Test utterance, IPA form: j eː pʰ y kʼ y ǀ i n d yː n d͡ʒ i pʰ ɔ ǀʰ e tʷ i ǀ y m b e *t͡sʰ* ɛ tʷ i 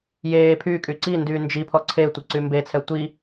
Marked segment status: correct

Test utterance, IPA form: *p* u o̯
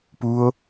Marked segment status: correct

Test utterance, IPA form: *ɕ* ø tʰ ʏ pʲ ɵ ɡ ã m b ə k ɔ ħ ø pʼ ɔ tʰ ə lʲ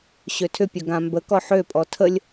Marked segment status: correct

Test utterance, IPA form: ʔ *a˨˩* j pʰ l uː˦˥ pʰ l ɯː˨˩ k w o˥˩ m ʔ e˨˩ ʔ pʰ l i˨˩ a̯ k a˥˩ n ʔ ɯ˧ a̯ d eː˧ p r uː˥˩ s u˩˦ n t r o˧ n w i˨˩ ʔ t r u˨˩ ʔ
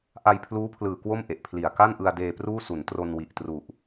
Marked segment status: incorrect: a˧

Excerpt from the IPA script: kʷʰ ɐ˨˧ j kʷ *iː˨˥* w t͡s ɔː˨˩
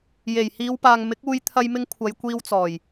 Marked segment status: incorrect: iː˧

